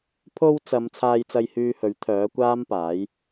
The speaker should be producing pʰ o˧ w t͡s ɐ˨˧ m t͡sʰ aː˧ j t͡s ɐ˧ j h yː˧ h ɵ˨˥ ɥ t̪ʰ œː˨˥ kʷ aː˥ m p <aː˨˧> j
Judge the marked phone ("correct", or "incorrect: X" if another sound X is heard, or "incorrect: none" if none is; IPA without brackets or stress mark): incorrect: aː˨˥